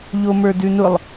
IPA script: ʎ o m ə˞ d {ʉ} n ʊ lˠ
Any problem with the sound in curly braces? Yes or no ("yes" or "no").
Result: no